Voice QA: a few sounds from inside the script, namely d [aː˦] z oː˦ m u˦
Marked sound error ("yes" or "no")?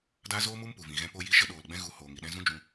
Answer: no